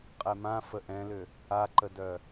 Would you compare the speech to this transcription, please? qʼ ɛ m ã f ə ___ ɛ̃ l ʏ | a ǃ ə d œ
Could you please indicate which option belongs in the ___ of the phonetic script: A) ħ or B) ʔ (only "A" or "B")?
B